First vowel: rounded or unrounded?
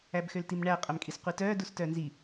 unrounded